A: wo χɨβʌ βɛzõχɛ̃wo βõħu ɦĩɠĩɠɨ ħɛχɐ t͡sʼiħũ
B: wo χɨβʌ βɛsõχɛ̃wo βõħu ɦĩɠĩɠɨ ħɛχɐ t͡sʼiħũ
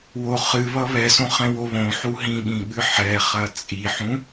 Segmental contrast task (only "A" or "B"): B